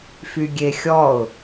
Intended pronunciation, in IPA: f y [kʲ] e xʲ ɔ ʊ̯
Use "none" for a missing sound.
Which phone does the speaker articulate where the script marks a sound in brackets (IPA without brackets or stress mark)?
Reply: ɡʲ